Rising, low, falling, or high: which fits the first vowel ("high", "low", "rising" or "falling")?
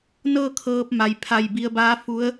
falling